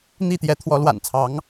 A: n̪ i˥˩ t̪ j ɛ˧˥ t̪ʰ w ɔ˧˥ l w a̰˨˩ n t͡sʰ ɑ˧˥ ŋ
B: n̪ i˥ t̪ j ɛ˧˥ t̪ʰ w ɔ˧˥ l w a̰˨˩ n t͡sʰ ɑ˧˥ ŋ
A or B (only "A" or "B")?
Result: A